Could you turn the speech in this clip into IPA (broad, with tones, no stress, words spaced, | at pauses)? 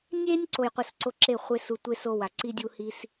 nʲe˦nʲ ǀo˨jqʷɯ˨s ǀo˧ǁe˦˨ χʷe˧ su˧ tʷe˦so˦˨wa˨ ǀi˦dʲu˦ hi˧s